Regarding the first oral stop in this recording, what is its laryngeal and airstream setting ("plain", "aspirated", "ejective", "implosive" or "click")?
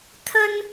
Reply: aspirated